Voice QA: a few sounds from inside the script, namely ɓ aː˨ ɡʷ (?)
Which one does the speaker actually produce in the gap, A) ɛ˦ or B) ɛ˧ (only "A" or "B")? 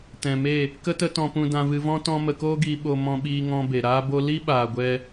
B